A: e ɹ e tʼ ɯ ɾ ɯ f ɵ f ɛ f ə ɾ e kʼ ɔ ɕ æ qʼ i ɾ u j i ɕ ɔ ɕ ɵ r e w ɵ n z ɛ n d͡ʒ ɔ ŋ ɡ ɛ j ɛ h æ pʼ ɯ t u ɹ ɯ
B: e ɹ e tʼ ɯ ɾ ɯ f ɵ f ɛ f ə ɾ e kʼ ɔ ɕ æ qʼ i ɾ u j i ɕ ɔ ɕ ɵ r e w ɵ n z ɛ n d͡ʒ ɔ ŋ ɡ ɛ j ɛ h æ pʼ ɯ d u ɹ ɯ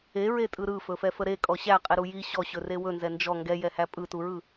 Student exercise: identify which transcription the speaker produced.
A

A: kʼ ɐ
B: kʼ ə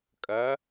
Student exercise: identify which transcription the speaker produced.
A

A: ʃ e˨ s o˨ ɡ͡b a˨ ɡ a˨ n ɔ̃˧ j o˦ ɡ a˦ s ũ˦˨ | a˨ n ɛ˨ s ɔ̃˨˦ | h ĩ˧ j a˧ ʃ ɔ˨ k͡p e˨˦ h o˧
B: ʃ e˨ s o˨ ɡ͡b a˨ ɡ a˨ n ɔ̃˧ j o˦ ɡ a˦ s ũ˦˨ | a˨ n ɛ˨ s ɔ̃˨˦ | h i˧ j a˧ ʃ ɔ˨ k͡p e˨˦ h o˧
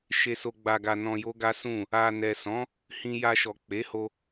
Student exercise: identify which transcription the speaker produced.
A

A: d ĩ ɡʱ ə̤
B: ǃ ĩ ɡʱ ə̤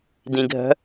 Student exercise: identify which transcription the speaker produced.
A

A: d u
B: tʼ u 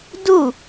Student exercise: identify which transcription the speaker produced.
A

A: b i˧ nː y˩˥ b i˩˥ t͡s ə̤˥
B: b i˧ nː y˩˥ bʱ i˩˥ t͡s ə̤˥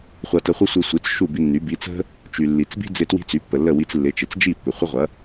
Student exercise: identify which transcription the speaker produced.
A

